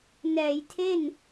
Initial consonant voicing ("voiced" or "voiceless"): voiced